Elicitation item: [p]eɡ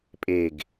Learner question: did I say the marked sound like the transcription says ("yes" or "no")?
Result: no